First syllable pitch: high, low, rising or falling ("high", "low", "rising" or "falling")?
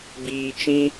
low